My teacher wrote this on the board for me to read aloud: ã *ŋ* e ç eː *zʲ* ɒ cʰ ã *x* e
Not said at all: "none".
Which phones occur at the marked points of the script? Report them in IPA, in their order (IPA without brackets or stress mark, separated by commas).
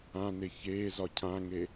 n, z, ŋ